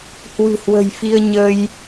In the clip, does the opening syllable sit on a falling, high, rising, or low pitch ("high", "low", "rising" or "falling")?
low